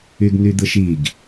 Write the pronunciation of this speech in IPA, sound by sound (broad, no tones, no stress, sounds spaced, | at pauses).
y ɡ n̪ y d̪ ɯ ʃ i ɡ